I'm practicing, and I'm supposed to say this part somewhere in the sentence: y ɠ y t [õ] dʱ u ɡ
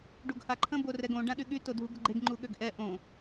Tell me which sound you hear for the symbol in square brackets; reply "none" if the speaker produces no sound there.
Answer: o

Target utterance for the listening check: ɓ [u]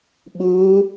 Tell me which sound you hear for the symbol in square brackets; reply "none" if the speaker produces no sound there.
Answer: u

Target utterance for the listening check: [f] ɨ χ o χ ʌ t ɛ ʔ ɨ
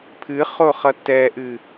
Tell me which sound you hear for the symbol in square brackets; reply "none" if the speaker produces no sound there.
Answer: pʰ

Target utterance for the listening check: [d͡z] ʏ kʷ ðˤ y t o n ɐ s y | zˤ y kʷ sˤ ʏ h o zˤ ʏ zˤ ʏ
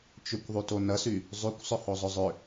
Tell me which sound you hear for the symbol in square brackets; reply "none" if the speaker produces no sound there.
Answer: t͡ʃ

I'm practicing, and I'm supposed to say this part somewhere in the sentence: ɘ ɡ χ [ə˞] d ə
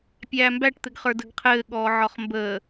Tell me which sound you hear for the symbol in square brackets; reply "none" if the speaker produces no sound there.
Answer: ə˞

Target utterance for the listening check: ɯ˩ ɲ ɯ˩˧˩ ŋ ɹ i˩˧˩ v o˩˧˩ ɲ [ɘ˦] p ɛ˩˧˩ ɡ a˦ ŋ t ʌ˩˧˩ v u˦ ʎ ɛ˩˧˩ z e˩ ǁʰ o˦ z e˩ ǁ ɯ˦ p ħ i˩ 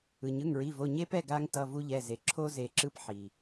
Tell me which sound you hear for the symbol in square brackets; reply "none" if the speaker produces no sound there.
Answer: e˦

